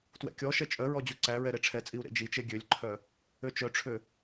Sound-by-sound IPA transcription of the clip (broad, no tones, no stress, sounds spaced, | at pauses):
t w ɛ̰ kʲ ɔ ʃ ɛ t͡ʃʼ œ ɹ ɔ d͡ʑ u ǀ æ ɹ ɛ ɾ e ʈ͡ʂʰ ɛ t͡sʼ i u̯ ɾ ḛ d͡ʒ i t͡ʃ e ɡʲ ø lʲ ǃʰ œ | ø t͡ʃ œ ʈ͡ʂʰ ø